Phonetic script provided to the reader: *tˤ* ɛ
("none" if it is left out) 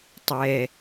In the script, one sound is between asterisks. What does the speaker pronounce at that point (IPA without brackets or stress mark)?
tˤ